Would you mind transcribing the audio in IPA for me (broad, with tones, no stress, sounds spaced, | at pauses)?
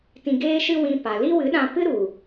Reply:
t ĩ˧ ɡ eː˦ ʃ ɨ˦ w ĩ˧ p a˨ l i˦ w ɨ˨˦ ɗ ã˧ p ɨ˦ ɾ u˨